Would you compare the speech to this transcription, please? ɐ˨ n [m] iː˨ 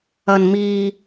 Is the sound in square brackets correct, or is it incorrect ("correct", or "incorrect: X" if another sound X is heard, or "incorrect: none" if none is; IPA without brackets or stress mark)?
correct